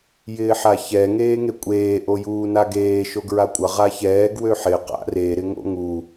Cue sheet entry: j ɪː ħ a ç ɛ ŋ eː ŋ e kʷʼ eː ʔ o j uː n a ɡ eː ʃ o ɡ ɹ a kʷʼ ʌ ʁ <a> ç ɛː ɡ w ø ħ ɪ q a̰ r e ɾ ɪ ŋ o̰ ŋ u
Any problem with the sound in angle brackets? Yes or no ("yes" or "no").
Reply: no